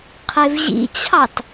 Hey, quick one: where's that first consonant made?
uvula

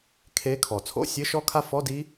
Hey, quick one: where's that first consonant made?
velum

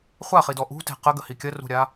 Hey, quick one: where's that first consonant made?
uvula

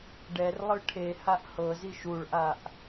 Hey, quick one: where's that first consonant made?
retroflex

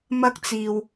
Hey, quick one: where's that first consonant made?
lips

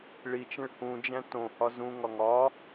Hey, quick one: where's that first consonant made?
retroflex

